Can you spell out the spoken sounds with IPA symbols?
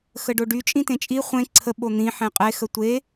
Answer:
xəɖoɖy t͡ʃʼĩtẽt͡ʃʼi χʷẽ ǀʰə ɓon̪ĩ ħẽqʼe xətʷe

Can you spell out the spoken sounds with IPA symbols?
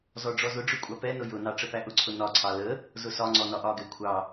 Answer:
zɔɖ͡ʐɔzʊɖ͡ʐʊ kʷʼɑpɛnʊ jʊnɑ ʈ͡ʂəpæʔʊǀʰʊ nɒǀʰɑ lə | zʊsɒŋ͡ǀɔ nɒʔɒɡɛ kʷʰɑ

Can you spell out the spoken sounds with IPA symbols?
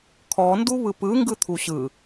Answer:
kʰɔndu βɯpɯŋɡɯt̪ʰu ɕɯ

